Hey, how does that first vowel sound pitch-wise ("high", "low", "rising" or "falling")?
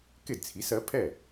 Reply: falling